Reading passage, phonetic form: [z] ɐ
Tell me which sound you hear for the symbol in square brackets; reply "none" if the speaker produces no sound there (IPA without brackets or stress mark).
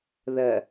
ð